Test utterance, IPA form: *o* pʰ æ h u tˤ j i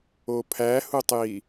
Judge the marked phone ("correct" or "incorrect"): correct